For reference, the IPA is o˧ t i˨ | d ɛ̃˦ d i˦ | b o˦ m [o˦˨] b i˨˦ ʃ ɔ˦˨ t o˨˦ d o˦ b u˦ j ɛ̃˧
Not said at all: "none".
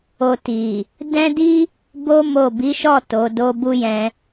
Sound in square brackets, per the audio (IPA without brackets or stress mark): o˦˨